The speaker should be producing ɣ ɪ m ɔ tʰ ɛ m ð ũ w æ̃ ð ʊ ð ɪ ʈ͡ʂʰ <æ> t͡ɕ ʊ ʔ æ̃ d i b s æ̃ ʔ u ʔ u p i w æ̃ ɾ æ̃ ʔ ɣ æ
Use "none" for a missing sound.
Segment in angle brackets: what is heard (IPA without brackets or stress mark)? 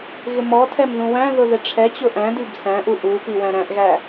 ɛ